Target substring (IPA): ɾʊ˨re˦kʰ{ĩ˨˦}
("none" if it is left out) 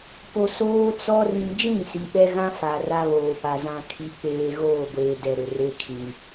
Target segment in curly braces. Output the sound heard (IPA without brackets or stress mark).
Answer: ĩ˨